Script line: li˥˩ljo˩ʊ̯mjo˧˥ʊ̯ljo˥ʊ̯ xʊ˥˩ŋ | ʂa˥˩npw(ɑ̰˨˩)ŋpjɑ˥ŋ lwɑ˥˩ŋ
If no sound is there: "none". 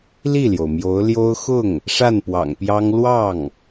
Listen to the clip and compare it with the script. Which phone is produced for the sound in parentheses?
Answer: ɑ̰˨˩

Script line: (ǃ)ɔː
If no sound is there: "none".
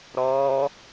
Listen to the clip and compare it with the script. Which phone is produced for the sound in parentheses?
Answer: ɾ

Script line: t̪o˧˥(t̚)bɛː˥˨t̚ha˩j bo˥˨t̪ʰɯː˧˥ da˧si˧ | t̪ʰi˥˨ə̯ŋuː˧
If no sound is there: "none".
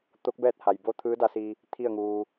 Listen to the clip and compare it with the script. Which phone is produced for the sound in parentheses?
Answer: k̚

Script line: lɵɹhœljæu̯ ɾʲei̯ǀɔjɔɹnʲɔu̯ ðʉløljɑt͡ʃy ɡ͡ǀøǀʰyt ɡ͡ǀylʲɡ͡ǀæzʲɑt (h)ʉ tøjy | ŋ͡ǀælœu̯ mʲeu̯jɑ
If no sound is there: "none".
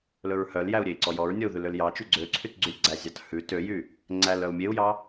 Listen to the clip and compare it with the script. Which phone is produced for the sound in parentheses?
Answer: h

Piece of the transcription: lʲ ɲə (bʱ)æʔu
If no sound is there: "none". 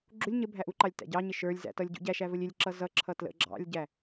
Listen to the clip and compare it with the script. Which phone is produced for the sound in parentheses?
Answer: bʱ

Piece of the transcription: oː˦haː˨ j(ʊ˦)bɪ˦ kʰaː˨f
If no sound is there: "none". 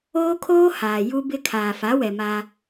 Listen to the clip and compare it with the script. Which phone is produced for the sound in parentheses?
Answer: u˦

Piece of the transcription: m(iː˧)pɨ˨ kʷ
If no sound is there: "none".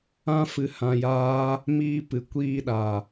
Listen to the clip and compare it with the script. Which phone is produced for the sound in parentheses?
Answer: iː˧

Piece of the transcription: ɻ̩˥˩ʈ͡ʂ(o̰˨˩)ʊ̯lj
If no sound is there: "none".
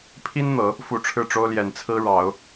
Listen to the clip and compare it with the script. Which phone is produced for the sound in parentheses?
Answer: o˥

